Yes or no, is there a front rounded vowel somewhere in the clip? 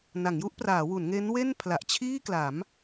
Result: no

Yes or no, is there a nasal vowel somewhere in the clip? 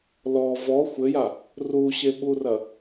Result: no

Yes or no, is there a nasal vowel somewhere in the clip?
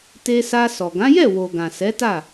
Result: yes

